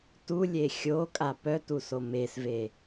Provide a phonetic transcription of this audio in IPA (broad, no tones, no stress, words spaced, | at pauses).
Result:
tulʲe xʲokʼa pœtuso mesve